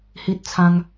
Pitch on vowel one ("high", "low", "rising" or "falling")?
high